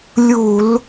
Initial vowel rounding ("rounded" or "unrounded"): rounded